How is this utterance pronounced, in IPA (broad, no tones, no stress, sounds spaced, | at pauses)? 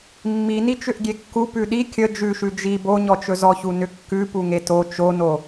mː i n i t͡ʃ ʏ ʔ ɡʲ e kː u p ʉ ɗ i kʲ ə d͡ʒ ʉ ʃ ʉ d͡ʒ i b o ɲ ɔ t͡ʃ ɵ z ɔ ç u n ʏ kː ʉ p u ŋ e t o t͡ʃ o n o